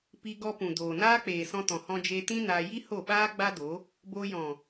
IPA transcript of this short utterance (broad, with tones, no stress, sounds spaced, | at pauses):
p i˧ ɡ ɔ˧ p ũ˨ d oː˨ n aː˦ k͡p eː˨ s ɔ̃˧ t ɔ̃˨ h ɔ̃˧ d͡ʒ e˧ t ĩ˦ n a˧ j i˦ h o˦˨ ɓ aː˦ ɡ͡b a˦ d o˨˦ | b o˧ j ɔ̃˨